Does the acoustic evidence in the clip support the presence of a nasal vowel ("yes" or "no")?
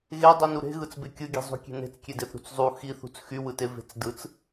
no